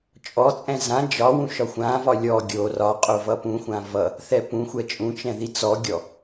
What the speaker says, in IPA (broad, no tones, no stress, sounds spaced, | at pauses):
t͡ʃʼ ɔ t͡sʼ ɛ̃ z ã d͡ʒ ɒ w ũ ʃ ɒ xʷ ã v ɒ lʲ ɔ ɡʲ o r ɒ qʼ o v ʌ p ũ xʷ ã v ʌ | θ ɛ p ũ xʷ ɛ t͡ʃʼ ũ t͡ʃ ɛ̃ ð i t͡s ɔ ɡʲ ɔ